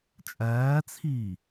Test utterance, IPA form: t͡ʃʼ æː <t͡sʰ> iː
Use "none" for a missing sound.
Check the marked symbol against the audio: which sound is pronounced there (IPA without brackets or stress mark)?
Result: t͡sʰ